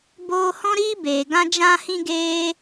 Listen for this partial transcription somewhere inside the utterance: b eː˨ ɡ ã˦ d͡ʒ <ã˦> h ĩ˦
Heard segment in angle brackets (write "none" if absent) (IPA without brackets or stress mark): ã˦